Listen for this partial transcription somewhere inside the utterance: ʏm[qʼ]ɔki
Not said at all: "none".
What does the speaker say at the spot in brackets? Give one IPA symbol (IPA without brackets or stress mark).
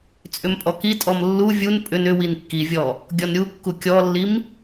pʼ